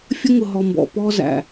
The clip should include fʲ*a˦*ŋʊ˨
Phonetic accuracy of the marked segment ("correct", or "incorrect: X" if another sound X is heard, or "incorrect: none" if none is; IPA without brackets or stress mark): incorrect: ə˦